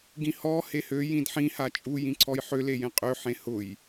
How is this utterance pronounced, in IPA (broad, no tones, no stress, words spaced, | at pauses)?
ɡĩhɔ hehø jĩdħĩ hat͡ʃʼu jĩǀʰɔjħø lejẽqʼø ħẽhʊj